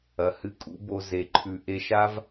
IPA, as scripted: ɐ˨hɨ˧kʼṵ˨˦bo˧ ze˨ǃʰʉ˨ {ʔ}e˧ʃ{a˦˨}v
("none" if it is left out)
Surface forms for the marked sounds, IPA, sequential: ʔ, a˦

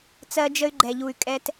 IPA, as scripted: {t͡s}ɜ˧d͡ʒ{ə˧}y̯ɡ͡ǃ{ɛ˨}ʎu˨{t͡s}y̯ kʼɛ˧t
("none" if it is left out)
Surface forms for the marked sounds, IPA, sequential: t͡s, ə˧, ɛ˨, none

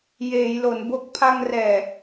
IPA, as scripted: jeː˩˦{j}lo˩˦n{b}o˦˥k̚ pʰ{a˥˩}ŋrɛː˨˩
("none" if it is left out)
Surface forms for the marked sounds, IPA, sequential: j, b, a˧

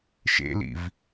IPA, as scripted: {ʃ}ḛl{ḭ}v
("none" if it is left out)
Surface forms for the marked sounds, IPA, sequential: ʃ, ḭ

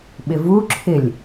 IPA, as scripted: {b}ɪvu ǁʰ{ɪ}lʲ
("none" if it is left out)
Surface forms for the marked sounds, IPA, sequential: ɓ, ɪ

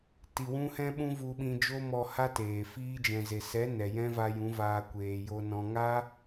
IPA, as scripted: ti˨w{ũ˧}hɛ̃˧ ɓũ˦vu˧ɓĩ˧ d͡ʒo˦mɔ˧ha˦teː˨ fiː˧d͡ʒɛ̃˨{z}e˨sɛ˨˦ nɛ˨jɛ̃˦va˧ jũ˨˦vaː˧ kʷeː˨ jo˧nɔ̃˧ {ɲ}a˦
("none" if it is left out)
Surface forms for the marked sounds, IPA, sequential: ũ˧, z, ŋ

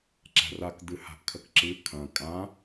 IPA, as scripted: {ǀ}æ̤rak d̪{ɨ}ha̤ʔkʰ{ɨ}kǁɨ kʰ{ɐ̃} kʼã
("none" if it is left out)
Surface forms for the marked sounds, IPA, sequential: ǁ, ɨ, ə, ɐ̃

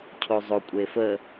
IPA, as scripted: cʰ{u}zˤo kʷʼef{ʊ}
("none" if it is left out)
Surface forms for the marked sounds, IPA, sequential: o, ə

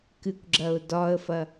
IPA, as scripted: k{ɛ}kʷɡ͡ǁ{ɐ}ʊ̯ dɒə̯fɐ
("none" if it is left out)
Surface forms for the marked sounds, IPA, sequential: ɨ, ɐ

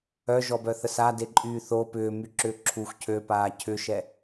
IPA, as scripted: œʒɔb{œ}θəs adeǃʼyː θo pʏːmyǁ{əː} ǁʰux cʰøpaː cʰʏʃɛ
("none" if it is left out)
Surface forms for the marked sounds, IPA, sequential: œ, ʏː

